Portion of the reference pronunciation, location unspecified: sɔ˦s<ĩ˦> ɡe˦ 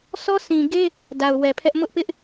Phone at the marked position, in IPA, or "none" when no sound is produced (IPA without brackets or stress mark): ĩ˨